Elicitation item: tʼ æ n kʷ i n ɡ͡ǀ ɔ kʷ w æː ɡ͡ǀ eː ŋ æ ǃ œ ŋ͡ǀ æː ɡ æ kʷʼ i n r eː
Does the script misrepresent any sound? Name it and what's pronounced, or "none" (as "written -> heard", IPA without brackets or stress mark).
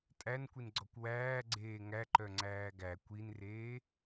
kʷʼ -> kʷ